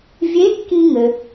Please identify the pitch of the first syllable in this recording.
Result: rising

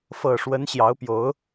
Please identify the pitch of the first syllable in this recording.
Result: low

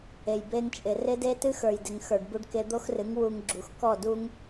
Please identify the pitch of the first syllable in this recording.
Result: low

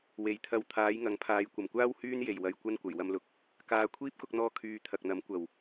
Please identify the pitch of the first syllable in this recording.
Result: low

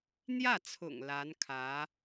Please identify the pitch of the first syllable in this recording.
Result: falling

